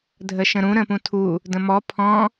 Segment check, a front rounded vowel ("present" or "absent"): absent